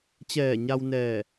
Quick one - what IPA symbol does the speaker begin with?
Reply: t͡ɕ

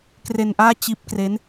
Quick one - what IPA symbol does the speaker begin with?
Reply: k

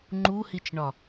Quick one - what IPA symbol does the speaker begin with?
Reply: ŋ͡ǃ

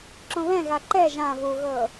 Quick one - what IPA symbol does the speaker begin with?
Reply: ǁ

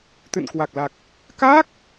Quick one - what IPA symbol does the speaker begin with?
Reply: t̪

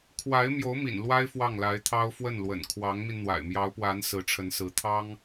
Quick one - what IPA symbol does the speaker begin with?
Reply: kʰ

